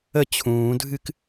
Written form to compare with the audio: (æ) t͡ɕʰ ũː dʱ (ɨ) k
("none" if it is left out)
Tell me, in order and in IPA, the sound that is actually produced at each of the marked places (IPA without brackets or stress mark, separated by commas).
ə, ɨ